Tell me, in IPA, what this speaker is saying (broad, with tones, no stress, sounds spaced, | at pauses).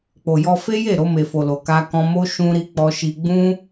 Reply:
k͡p o˨ j ɔ˧ f e˦ j e˦˨ ɾ o˧ m e˨ f o˨ l o˨ k a˧ k ɔ̃˧ m o˦ ʃ ũ˧ ɾ i˧ k͡p ɔ˧ ʃ i˧ ɡ͡b ũ˦